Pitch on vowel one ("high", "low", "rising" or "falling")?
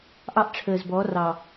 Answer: high